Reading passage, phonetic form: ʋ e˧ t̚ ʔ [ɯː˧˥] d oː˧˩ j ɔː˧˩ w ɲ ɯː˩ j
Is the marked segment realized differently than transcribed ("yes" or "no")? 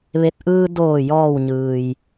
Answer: yes